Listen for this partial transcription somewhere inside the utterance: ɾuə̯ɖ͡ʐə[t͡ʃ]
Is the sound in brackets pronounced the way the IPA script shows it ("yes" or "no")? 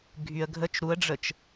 yes